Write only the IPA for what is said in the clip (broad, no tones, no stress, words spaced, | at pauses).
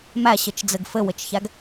mæɕɘt͡ʃd͡zɘɡ fɘwɘt͡ʃçæɡ